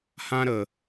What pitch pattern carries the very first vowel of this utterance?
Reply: high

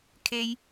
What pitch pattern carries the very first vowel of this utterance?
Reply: high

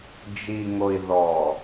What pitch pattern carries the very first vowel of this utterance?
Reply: low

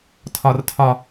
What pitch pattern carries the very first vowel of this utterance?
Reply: high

